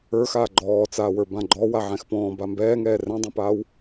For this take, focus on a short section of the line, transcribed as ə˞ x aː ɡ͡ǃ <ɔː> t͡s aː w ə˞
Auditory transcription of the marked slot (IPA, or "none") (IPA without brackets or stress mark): ɔː